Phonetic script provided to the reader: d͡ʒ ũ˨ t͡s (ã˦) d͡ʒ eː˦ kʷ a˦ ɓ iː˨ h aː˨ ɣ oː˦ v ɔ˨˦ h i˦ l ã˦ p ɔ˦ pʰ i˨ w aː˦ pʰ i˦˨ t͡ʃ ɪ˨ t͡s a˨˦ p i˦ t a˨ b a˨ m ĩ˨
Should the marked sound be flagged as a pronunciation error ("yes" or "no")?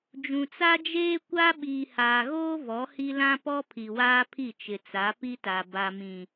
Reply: yes